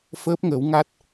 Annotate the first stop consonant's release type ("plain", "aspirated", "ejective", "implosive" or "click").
plain